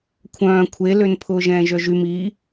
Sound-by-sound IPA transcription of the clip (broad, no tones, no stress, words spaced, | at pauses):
kʷʰœ̃ː kʷʰelønpʰʊː ʒɛ̃ːʒœʒym i